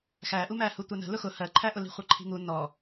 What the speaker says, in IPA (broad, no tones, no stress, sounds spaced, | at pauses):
x æ ʔ u m æ h u tʷ ɛ n ə̤ l ʊ x ʊ h ɜ ǃʰ æ ʔ ʊ l i̤ χʷ ʌ ǃʰ i̤ ŋ u n ɔ